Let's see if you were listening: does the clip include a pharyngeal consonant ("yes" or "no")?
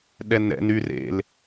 no